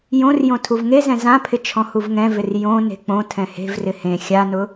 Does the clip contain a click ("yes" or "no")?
no